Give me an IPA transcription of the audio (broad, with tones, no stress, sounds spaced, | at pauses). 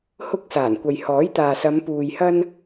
h ʊ˧ k̚ s aː˨˩ n kʷ ɐ˨ j h ɔː˨˥ j t̪ aː˨ s ɐ˨˧ m p uː˨ j h ɐ˥ n